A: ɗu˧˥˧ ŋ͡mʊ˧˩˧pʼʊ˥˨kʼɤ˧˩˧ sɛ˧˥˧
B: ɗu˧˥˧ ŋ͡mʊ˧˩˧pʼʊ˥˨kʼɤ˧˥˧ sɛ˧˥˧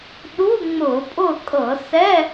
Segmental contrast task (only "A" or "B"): A